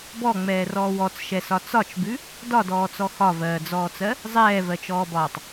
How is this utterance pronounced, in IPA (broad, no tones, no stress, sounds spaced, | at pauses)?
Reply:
b ɔ ŋ͡m ɛː r ɔː w ɔ t͡s ʃ ɛ s ɒ t͡s ɒ t͡ʃ b ʉ | d ɒ d ɔː t͡s ɔ x ɒ v ɜː d͡z ɔː t͡s ɜ | zˤ ɛː v ɜ t͡ʃ ɔː b ɒː tˤ